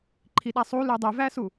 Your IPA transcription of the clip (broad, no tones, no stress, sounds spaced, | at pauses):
ǃʰ i ɗ a sˤ u l ʉ dˤ ʉ v æ s u